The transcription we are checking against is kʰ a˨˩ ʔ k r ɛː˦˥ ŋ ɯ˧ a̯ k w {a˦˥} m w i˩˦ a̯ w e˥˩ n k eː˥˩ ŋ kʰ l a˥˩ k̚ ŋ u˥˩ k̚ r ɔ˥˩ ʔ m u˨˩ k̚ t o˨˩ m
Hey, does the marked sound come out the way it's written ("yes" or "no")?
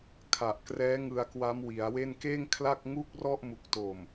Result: yes